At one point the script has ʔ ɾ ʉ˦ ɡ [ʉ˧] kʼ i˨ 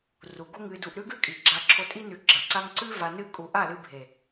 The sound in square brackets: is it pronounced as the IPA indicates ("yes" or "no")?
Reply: no